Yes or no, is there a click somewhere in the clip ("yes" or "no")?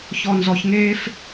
no